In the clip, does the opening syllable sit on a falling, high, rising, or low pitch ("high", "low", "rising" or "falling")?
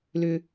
low